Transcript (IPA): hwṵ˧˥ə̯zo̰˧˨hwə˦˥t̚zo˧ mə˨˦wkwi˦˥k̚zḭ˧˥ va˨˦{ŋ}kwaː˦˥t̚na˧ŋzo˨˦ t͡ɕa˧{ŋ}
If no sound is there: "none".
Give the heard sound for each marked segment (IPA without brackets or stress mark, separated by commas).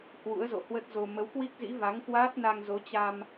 ŋ, m